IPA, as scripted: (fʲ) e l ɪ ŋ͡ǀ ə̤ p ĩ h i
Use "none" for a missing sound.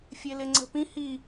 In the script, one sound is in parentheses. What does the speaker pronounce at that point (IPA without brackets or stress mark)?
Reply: fʲ